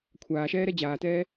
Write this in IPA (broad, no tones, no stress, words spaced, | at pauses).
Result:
kʷʰaːʃɛːɾɛ d͡ʑaːtɛː